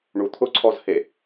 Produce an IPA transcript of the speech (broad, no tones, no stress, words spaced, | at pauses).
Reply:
ɳut̪ʰʊǀʰɔzhe